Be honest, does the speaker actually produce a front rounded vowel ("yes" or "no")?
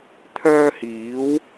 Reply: yes